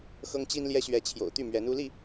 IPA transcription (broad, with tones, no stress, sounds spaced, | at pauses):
x ɤ˦ ŋ t͡ɕ i˦ n l j ɛ˦ ɕ ɥ ɛ˨˦ t͡ɕʰ j o̰˨˩ ʊ̯ t̪ y˥˨ m ɥ ɛ˨˦ n u˦ l i˥˨